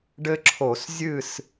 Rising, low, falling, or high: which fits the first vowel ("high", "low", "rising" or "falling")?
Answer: high